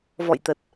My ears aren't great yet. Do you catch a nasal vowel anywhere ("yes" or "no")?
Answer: no